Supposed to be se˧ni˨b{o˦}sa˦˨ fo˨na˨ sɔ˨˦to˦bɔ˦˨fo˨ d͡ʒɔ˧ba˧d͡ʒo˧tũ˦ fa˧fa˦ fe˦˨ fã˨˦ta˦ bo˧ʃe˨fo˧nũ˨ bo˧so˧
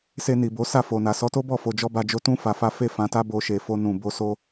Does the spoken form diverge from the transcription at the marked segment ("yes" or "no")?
yes